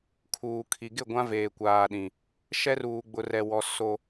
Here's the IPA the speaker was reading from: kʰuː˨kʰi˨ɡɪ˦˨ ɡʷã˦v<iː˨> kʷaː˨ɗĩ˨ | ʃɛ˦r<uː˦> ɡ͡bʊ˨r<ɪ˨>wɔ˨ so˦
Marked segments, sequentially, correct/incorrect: incorrect: eː˨, incorrect: uː˨, incorrect: ɛ˨

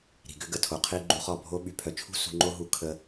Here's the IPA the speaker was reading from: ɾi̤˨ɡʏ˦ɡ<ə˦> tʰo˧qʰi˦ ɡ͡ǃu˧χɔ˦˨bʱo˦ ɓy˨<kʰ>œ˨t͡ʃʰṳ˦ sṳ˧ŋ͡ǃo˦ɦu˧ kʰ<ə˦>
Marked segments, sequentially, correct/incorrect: incorrect: ə˧, incorrect: pʰ, incorrect: ə˧

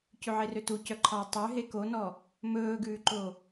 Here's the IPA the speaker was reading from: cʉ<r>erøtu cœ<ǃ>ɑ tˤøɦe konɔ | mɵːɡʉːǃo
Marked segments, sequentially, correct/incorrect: incorrect: ʕ, incorrect: ǃʰ

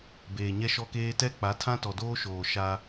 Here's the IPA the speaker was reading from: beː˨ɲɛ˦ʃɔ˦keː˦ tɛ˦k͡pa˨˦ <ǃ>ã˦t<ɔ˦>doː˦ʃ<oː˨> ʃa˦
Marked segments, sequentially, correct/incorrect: incorrect: tʰ, incorrect: ɔ˨, correct

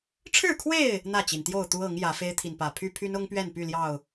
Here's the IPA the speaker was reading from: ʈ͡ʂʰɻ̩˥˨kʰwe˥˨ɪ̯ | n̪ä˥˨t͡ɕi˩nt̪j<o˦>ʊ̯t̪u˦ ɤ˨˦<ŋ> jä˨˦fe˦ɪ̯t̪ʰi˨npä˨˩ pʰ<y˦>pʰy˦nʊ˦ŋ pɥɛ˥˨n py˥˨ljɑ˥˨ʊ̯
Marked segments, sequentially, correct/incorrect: incorrect: o˥˨, correct, correct

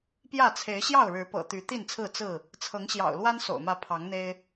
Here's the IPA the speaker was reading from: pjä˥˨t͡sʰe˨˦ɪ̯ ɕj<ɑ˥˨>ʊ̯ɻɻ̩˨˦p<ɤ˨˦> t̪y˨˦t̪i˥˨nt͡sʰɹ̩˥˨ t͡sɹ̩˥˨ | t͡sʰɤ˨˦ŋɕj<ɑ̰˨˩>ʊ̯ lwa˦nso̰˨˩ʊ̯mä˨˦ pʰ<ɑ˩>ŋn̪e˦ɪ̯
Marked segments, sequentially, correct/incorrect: correct, incorrect: ɤ̰˨˩, correct, incorrect: ɑ˨˦

